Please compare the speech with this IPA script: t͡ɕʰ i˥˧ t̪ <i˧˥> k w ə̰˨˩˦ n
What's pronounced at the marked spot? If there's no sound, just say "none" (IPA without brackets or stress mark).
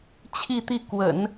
i˥˩